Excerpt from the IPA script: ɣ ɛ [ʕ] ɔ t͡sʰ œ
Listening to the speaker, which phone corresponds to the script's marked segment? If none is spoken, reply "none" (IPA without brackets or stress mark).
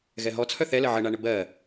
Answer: ɦ